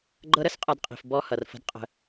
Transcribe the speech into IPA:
ɡ͡ǃ ɤ˦ ɾ ə˦ s qʼ ʌ˧ d qʼ i̤˨ f b ɔ˦ h ʌ˨ r f ə̤˦ d qʼ ə̤˧

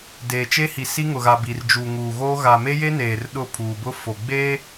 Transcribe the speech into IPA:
d eː˨ t͡ʃ e˦ h i˨ s i˦ ŋ ʊ˨ ɣ a˨ b i˨ r d͡ʒ uː˨ ŋ uː˨ ɣ oː˦ ɣ a˨ m e˦ j e˦ n eː˨ r ɗ ʊ˦˨ pʰ uː˨ b ʊ˦ f o˨ ɡ͡b eː˦

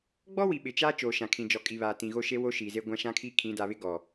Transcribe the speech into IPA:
ɡ͡b ɔ˦ w i˨ ɓ ɪ˨ t͡ʃ aː˦ t͡ʃ oː˨ ʃ ã˨ kʰ ĩ˨ d͡ʒ ɔ˨ kʼ i˨ β aː˨ t ĩ˨ ɣ o˦ ʃ e˦ w o˦ ʃ i˨ z e˦ ɡʷ ã˦ ʃ ã˦ kʰ i˦ kʰ ĩ˨˦ d a˨ β ɪ˦ ɡ ɔ˨

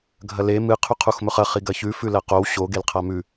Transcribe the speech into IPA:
ɡʱ ɐ l e m ɨ qʰ ʉ qʰ u x m ɵ χ ɐ χ i ɡ ɐ ç ʉ f ʉ l ɐ q o w ɕ o ɡ e l qʰ a m ʉ

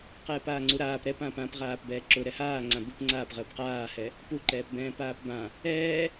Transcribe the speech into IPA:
q ɛː p aː ŋ͡ǀ u ɾ aː p ɾ ɛ p ãː p ã p ʁ aː p b ɛː ǁ ʊ ɾ ɛ h aː ŋ͡ǀ ã b u p ŋ͡ǀ aː p ʁ əː p q aː h ɛ | p u ǃ ɛː p b ɛ̃ː p aː p b ã | ɛː

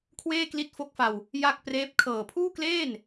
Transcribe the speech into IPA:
kʰ w eː˥˩ k l i˦˥ t̚ f o˦˥ k̚ f a˧ w | j a˥˩ k̚ p r eː˦˥ p̚ kʰ ɤː˨˩ pʰ uː˥˩ k l eː˥˩ n

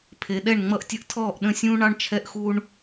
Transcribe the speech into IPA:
pʰ e˨ ɗ ɛ˥˩ ɳ ŋ͡m ʌ˦ ʔ tʲ ə˦ ʔ tʰ ɔː˥˩ ʔ ɗ ə̃˥˩ sʲ ũː˦ ɳ ɑ˦ ɳ t͡ʃʰ ɛ˦ ʔ x u˦ ɳ

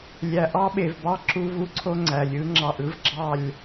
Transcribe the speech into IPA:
lʲ æ˨ ʔ ɑ˦ ɓ e˨ v b ɑ˦ ǁ u˦ v u˦ ǀʰ o˦ ŋ͡ǀ æ˨ lʲ ɯ˦ ŋ͡ǁ ɑ˧ ʔ ɯ˦ v ɡ͡ǁ ɑ˦˨ lʲ

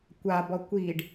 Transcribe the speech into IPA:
kʷ a b ɔ kʷ i ɖ

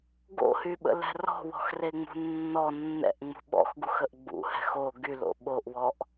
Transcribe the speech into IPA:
ɡ o̰ h y ɓ ə̰ l ɛ̤ r ɔ̤ w ɔ̤ x r e ŋ͡m ṳ nː ɔ nː ɛ̰ ʔ ŋ͡m ṳ ɓ ɔ̰ x ɡ u x ə ʔ ɡ͡b ṵ h ɛ̤ x o ɡ y l o̰ ɓ o ʔ w ɔ ʔ

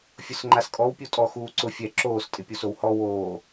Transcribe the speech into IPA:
fʲ ʊ s ŋ͡ǃ a s kʼ ɔ w pʲ o tʼ ɔ x uː ǀ ʊ fʲ ɛ ǁ oː s tʼ ɪ pʲ o s o w h ɔ w oː

